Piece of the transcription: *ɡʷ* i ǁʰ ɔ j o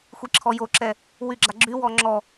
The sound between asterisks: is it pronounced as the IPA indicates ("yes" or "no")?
no